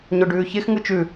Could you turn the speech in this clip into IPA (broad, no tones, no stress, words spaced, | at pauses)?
ɲoɖʉːçex ŋɯt͡ʃʉ